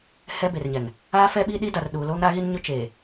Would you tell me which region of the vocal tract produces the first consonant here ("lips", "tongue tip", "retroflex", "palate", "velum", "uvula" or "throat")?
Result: throat